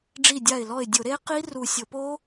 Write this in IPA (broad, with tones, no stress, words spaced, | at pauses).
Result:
ɖ͡ʐi˧˩dʲa˧˩ɪ̯lɔ˧˩ɪ̯ dʲʊ˧˩˧ɾe˦˥ qi˦˥ ru˧˩ sʲo˧˩˧po˦˥